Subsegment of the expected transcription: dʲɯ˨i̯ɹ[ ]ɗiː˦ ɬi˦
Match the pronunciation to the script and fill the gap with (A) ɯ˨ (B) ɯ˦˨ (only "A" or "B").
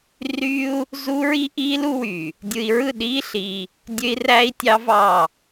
B